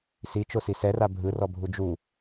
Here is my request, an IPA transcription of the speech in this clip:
s i t͡ʃ o s i s ɛ r a bʱ ɯ r ɔ bʱ u d͡ʒ u

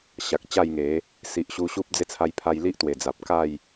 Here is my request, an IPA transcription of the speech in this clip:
ɕ a˨ k̚ t͡ɕ a˥˧ j ŋ e˨˦ | s i˨ ʔ ɕ u˧ ɕ u˦ p̚ d͡z e˦ t͡sʰ a˧ j pʰ a˧ j l i˦ ʔ t̪ w e˨˩ d͡z a˨ p̚ k a˥˧ j

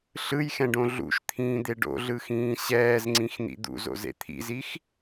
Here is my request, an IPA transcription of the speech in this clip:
ɬ ɯ j x ɛ̃ ɖ õ ɮ ṵ ʃ t̪ʰ ĩː d̪ e ɖ o̰ ɮ ɯ x ĩː ɕ ɛː z ŋ͡ǀ ĩ x n̪ ḭ d̪ ṵ z o̰ z ḛ t̪ʰ ḭ z i x

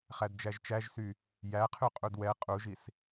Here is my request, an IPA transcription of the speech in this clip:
χ æ d d͡ʒ æ ʒ t͡ʃ æ ʒ s y | j æ qʰ y qʼ u d w ɛ qʼ u ʒ i s

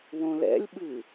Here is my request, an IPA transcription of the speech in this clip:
w õ l ɛ̰ lʲ ɓ ɨ

